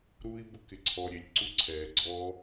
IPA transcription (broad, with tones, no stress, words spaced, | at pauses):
ɾu˧i̯bʊ˧kɪ˩ǀʰɔ˩ ɾʲe˩lʲǀu˧ǀʰɛː˩ɡ͡ǀɔː˧